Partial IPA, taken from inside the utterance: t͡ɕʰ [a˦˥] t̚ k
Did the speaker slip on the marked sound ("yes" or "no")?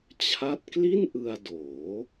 no